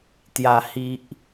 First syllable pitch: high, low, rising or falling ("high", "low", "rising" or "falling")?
low